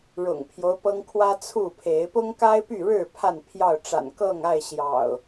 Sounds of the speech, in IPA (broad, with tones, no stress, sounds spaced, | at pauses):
ɻ ʊ̰˨˩ ŋ pʰ j o˦ ʊ̯ p ɤ˦ ŋ kʰ w ä˦ t͡sʰ u˥˨ pʰ e˨˦ ɪ̯ p ʊ˦ ŋ k a˦ ɪ̯ p y˥˨ ɻ ɻ̩˥˨ pʰ a˥˨ n pʰ j ɑ˥˨ ʊ̯ ʈ͡ʂ a̰˨˩ n k ɤ˥˨ ŋ a˥˨ ɪ̯ ɕ j ɑ̰˨˩ ʊ̯